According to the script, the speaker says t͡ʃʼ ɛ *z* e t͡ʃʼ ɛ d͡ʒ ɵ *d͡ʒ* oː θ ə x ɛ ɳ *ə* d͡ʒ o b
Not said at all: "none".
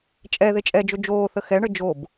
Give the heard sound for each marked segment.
ð, d͡ʒ, ə

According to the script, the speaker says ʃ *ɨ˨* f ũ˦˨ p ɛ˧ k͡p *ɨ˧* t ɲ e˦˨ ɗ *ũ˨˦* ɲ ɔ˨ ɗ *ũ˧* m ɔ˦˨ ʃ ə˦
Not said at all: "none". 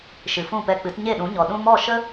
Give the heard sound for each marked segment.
ɨ˨, ɨ˨˦, ũ˨˦, ũ˧

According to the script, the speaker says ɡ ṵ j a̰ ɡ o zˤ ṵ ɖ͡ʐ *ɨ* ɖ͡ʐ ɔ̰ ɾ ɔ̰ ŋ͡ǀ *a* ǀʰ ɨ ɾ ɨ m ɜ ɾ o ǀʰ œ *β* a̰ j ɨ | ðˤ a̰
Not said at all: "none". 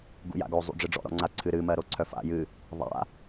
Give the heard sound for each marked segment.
ɨ, a, f

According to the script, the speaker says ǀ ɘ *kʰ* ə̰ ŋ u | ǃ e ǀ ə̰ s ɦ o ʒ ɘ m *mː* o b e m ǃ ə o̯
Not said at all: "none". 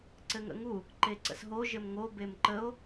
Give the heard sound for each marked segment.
ŋ, ŋ

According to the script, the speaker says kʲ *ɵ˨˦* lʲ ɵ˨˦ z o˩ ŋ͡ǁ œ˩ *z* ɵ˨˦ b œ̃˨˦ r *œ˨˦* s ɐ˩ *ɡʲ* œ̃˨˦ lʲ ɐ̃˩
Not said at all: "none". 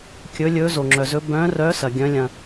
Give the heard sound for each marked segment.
ɵ˨˦, z, œ˨˦, ɡʲ

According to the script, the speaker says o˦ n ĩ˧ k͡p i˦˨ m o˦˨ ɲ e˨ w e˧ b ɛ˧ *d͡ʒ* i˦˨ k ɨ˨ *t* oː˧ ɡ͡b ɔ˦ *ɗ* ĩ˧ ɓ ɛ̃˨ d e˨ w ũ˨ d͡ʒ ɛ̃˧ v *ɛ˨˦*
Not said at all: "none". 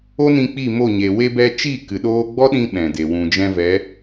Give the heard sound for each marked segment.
t͡ʃ, ɗ, ɗ, ɛ˨˦

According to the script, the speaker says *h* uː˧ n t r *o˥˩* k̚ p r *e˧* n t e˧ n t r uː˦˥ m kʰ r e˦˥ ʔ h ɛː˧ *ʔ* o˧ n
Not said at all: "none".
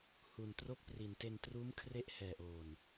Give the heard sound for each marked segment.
h, o˥˩, i˧, ʔ

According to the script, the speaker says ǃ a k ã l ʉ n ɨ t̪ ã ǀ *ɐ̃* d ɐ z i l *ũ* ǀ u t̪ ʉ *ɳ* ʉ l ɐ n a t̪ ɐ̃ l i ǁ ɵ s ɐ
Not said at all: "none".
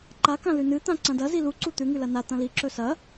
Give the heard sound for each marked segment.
ɐ̃, u, ŋ

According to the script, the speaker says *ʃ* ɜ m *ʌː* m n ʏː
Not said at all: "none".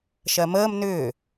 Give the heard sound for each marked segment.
ʃ, əː

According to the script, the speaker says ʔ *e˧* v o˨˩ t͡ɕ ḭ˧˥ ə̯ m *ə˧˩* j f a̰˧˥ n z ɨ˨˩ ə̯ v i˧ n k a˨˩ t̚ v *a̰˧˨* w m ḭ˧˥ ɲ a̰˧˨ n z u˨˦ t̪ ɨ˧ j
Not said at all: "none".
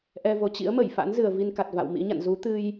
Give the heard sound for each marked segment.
ɛ˧, ə˧˩, a̰˧˨

